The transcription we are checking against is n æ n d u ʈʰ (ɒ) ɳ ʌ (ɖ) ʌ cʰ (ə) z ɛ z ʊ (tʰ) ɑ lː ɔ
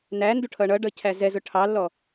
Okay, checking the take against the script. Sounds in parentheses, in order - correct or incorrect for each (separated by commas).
incorrect, correct, incorrect, incorrect